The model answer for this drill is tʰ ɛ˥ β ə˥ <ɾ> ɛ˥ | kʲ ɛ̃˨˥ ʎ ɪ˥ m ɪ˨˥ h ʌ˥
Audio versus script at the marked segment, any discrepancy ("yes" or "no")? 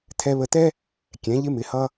yes